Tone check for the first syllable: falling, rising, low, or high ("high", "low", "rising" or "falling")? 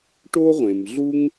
high